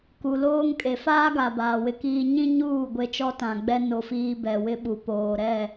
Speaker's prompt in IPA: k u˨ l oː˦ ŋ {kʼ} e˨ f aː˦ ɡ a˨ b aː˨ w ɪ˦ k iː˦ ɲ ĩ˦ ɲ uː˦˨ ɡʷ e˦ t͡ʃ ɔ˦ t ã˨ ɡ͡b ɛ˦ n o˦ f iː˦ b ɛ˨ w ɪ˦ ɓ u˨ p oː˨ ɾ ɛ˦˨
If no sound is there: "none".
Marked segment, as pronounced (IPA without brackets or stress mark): kʼ